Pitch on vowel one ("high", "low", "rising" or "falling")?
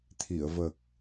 low